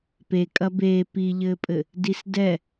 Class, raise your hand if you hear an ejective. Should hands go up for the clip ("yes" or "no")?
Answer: yes